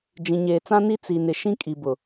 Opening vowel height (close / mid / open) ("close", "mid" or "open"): close